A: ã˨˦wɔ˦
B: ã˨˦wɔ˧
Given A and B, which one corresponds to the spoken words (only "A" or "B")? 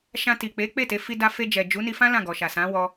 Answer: B